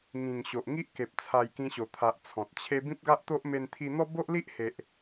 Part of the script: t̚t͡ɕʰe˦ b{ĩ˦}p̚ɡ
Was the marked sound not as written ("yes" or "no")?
no